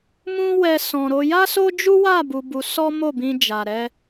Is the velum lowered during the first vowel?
yes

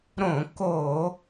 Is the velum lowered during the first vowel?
yes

